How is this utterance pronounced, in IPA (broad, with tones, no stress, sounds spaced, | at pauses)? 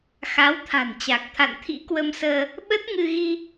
x a˨˦ w t̪ʰ a̤˨˩ n t͡ɕ a˨˩ k̚ t̪ʰ a̰˧˨ n t̪ʰ ḭ˧˥ k w ə˧ m s əː˧ | ɓ ə˦˥ t̚ ŋ ɨ˧ ɣ i˧